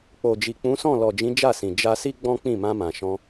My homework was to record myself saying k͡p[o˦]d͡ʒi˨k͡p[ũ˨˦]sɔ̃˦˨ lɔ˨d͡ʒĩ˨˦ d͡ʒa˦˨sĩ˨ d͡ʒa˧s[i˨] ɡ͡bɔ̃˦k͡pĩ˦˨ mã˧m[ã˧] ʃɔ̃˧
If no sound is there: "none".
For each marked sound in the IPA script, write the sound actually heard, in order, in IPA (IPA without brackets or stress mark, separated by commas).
o˨, ũ˨˦, i˦, ã˨